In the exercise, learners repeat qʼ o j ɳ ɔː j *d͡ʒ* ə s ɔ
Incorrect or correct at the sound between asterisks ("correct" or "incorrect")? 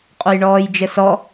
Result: correct